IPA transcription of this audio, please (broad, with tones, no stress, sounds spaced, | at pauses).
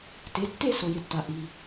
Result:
t e˩˧˩ tː e˥˨ s o˩ j ɪ˩ tː a˩ ʔ i˩